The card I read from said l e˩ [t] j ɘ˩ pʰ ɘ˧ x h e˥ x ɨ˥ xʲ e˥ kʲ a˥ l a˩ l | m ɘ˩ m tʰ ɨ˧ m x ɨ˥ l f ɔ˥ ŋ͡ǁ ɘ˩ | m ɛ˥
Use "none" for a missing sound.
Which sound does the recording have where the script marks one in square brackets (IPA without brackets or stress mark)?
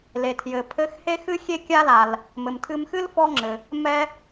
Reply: tʰ